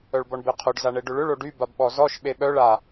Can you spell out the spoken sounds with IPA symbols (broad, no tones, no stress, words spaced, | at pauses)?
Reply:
œɭbɔɳbeqʰoɖ zaɳeɖʏɭʏɭ oɖy babɓɔzɔʃ ɓeɓœɭ a